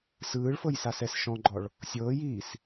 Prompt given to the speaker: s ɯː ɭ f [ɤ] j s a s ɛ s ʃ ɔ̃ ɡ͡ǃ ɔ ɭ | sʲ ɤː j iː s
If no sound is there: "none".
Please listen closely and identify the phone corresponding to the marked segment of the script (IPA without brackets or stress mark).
ɤ